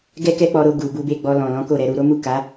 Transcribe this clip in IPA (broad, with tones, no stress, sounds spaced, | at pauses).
ɡ ɛ˦ k ɛ˦ k͡p ɔ˧ ɾ o˧ ɡ u˨ b u˧ b e˧ ɡ͡b ɔ˧ l ɔ̃˨ l ɔ̃˨˦ k o˦˨ ɾ ɛ˧ ɾ u˧ ɾ o˦ m u˦˨ k a˨˦